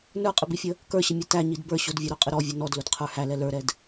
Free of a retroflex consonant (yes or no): yes